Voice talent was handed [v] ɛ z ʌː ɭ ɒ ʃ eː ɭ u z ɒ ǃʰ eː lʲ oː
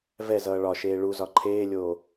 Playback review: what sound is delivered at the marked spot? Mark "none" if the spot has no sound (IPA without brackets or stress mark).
v